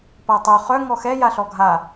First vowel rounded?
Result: no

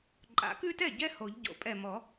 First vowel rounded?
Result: no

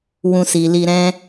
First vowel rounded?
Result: yes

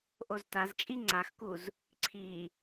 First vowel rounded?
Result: yes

